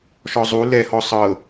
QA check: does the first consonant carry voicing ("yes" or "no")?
no